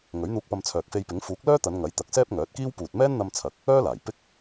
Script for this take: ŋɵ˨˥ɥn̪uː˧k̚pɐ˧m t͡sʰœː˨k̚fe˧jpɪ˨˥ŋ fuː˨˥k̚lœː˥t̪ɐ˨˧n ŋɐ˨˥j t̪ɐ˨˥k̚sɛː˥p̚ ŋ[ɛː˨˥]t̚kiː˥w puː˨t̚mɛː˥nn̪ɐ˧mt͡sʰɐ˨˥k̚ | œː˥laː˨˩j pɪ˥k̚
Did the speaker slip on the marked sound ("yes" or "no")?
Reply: yes